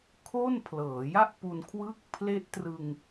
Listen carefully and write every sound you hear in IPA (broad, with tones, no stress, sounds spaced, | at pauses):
kʰ o˥˩ n pʰ l ɤː˩˦ j a˥˩ ʔ p u˧ n kʰ w ɯ˥˩ k̚ pʰ l e˦˥ ʔ t r ɯ˧ ŋ